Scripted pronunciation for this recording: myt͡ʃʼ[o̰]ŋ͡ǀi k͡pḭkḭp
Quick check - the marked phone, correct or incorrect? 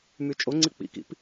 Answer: incorrect